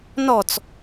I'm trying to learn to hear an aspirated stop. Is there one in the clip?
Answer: no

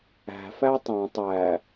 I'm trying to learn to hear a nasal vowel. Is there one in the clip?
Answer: yes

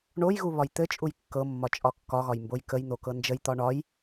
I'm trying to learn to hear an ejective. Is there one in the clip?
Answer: yes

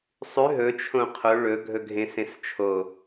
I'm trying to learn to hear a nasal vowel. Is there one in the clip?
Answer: yes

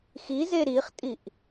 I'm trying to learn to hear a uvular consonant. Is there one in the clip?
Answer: yes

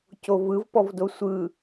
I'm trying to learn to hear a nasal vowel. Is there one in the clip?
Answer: no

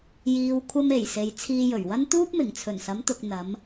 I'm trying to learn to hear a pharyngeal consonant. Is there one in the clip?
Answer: no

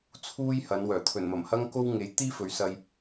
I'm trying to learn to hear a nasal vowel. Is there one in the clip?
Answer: no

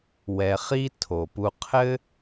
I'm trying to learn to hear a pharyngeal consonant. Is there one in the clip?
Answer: no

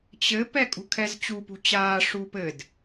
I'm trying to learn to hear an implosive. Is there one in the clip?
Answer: no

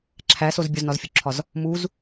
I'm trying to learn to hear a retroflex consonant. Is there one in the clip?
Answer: no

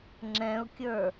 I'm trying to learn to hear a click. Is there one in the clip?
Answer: yes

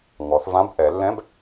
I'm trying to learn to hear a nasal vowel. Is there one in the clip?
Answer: yes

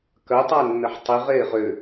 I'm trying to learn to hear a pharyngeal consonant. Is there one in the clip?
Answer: yes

